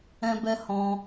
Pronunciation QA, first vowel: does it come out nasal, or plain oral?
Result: nasal